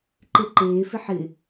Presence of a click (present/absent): present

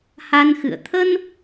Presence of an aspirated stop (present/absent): present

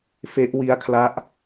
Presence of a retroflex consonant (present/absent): absent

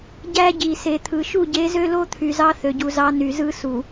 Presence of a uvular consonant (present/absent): absent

